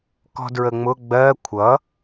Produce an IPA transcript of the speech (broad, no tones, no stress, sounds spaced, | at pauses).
k ɔ̤ d ɹ ə ŋ͡m ʊ ɡ͡b ɜ kʷʰ ʌ